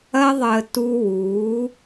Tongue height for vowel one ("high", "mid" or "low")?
low